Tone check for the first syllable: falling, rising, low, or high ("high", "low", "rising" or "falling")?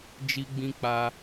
high